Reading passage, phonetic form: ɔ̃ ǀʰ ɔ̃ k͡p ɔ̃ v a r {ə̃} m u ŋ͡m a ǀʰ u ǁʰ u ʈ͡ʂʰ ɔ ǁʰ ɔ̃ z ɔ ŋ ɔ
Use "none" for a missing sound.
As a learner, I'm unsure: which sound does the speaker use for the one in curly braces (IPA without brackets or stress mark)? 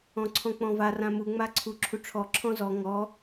ã